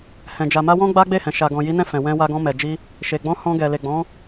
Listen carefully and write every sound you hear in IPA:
hɛ̃˨d͡ʒa˨ma˧ wɔ̃˦ɡ͡ba˦ ɡ͡be˦˨hɛ̃˨ ʃa˨ɡɔ̃˨ji˨˦nɛ̃˦˨ fɛ̃˨ wɛ̃˧ wa˧ɡɔ̃˧mɛ˨d͡ʒi˧ | ʃe˨ɡ͡bɔ̃˧ hɔ̃˧ɡɛ˨ le˨ɡ͡bɔ̃˨˦

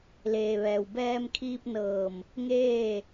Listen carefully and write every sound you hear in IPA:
leː˩ʋɛː˩w bɛː˧m kʰiː˧p̚nɤː˧˩m | ŋeː˥˨

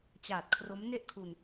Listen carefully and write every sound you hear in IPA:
t͡ɕaː˨˩t̚kʰro˦˥m ne˥˩ʔkʰu˧n

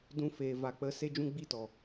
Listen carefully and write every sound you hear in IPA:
dũ˦feː˧ va˧k͡pə˦ se˦d͡ʒũ˦ ɡ͡bi˦˨tɔ˨

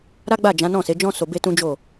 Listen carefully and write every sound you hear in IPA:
ɾa˦ɡ͡ba˦˨d͡ʒã˨˦ nɔ̃˦˨se˨˦ d͡ʒɔ̃˦so˧ be˦tũ˦d͡ʒo˦˨

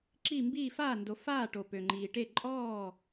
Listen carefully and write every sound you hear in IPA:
ǁi˧˩mbiː˧˩ faː˧˩ndo˩ faː˧˩ʈo˩ pø˩ŋ͡ǃiː˩ʈe˧˩ ǃʼɔː˧˩

